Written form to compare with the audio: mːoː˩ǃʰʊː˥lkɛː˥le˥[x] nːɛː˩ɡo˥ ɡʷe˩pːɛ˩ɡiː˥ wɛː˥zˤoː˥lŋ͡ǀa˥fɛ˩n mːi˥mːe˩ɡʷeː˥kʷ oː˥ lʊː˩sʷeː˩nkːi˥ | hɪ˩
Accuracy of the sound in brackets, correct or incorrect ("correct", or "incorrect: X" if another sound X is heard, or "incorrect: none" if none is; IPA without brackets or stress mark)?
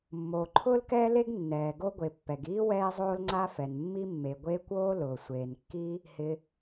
incorrect: ɡ